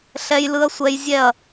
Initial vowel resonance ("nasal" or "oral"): oral